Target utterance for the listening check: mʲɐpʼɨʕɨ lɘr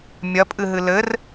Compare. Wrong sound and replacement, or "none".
ʕ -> ɦ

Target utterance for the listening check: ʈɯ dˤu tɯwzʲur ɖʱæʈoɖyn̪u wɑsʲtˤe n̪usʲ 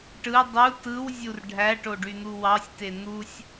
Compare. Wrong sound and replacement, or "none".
tˤ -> t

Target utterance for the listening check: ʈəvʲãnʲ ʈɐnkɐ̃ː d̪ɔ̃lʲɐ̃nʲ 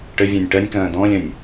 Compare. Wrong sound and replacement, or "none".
n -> nʲ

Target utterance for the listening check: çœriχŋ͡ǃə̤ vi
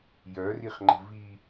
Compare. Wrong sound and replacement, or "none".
ç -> j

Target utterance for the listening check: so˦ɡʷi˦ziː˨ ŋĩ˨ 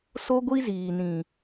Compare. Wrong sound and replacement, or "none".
ŋ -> n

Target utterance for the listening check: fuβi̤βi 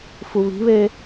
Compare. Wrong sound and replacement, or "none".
i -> e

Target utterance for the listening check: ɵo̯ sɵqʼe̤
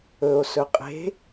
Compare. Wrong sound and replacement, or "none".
none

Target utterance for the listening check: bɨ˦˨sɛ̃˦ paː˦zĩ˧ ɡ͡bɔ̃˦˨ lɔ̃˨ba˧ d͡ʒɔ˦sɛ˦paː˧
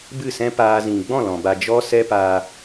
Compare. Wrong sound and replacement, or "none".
none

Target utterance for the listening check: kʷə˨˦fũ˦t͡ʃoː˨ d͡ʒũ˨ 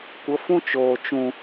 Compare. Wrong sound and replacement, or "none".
d͡ʒ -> t͡ʃ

